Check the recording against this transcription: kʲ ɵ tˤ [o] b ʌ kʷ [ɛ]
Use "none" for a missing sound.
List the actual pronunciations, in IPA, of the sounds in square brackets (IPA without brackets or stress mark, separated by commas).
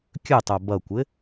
o, ɘ